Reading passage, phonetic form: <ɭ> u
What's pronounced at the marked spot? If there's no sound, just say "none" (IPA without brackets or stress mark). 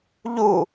ʎ